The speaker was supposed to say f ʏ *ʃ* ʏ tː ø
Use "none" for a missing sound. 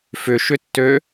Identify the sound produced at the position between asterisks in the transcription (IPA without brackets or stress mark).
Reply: ʃ